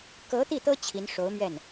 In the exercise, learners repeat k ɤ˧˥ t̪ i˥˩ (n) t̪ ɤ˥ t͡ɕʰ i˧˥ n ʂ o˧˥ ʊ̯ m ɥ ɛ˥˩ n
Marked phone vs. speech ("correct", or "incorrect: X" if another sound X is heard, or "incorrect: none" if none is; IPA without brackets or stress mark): incorrect: none